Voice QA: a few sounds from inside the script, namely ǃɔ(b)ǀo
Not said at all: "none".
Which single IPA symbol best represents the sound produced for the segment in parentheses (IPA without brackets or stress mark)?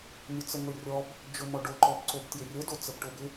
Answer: b